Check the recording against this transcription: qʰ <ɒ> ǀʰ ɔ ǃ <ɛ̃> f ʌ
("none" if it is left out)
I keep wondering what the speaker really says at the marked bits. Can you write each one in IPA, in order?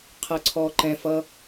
ʌ, ɛ̃

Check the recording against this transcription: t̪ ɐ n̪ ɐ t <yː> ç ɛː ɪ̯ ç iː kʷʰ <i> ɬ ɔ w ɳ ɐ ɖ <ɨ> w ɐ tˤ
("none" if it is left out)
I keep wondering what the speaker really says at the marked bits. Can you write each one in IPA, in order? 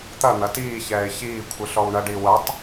iː, ɨ, i

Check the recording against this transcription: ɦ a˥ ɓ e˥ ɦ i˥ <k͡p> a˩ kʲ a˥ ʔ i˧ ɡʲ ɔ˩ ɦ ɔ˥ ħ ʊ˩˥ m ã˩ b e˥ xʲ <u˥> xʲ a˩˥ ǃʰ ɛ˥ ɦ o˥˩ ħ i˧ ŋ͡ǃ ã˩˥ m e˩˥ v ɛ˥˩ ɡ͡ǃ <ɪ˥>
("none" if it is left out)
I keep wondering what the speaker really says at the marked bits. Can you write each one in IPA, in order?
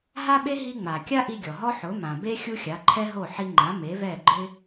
ŋ͡m, u˥, ɪ˥

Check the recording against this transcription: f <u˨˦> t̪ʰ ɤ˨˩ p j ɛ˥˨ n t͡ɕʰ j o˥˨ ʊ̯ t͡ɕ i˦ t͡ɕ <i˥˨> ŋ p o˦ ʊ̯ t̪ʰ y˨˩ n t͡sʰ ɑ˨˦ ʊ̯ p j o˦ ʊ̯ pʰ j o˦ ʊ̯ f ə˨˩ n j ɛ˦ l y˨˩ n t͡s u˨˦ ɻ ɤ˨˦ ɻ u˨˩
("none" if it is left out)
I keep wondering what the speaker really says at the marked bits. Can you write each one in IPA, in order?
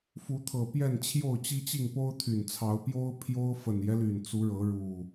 u˨˦, i˥˨

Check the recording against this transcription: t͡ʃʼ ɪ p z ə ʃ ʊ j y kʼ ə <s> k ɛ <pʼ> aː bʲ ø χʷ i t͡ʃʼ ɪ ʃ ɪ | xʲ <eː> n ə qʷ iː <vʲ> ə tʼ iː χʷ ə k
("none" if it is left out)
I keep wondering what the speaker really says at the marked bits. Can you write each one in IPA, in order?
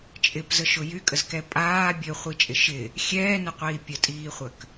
z, pʼ, ɛː, pʲ

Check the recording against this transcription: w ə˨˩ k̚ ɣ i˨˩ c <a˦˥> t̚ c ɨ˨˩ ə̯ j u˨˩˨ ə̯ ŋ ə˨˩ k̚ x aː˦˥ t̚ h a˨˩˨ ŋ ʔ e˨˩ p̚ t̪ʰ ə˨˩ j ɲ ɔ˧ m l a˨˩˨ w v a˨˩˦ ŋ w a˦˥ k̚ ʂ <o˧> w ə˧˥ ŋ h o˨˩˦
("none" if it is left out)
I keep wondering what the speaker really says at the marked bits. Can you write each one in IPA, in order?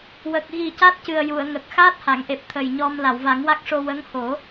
a˦˥, o˧

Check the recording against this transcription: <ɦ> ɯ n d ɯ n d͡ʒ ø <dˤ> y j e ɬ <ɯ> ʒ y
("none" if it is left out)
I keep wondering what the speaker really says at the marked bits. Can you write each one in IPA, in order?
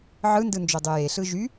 ʕ, dˤ, ɯ

